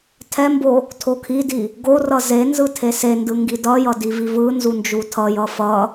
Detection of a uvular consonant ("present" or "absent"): absent